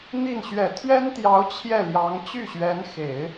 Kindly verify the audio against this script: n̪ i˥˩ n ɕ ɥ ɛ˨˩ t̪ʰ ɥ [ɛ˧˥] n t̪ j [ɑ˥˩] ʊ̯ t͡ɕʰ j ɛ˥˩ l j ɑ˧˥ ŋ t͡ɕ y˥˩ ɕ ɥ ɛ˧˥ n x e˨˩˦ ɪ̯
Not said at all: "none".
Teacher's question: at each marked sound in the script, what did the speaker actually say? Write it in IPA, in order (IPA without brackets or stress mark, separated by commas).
ɛ˥, ɑ˧˥